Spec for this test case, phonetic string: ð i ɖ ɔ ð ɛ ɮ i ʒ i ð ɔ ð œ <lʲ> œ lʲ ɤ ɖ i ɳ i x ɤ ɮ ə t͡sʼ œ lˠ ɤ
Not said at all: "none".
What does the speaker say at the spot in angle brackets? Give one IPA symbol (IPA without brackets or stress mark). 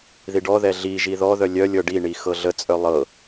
lʲ